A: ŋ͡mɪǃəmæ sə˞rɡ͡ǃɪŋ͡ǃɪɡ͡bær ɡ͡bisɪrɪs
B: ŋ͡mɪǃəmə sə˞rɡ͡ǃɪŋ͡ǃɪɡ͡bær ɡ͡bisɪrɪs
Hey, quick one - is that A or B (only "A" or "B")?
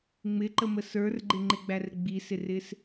B